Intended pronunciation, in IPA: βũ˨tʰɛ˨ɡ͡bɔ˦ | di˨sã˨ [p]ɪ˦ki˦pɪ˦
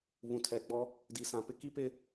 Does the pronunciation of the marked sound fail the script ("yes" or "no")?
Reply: no